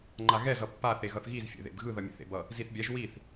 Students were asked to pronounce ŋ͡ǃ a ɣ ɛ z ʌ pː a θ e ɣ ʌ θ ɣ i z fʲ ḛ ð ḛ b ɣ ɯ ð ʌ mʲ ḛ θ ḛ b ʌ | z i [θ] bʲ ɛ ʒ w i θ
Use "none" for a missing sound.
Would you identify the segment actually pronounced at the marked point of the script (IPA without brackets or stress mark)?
θ